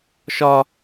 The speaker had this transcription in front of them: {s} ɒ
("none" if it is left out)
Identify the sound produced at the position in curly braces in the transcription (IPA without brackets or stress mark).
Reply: ʃ